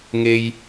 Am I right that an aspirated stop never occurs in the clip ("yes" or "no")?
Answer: yes